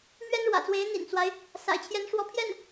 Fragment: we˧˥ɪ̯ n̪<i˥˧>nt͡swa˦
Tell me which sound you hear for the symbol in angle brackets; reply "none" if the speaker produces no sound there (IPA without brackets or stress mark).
ḭ˨˩